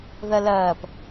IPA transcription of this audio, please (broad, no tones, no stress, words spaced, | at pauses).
ðɐlɐːp